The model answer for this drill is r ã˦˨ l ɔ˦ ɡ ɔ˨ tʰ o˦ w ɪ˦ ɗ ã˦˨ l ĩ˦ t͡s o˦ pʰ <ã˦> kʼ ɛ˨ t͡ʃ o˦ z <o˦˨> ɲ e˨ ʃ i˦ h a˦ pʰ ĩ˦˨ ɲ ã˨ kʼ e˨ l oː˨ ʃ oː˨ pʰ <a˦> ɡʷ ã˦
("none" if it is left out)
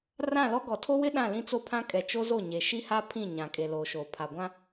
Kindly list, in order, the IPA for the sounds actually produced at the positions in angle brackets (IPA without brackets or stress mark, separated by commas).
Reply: ã˦, o˦˨, a˨